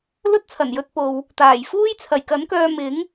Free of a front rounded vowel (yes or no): no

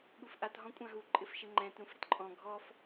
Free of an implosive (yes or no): no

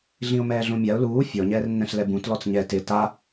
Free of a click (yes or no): yes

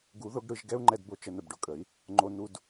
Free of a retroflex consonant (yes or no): no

